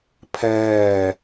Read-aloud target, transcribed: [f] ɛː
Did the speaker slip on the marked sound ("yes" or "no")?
yes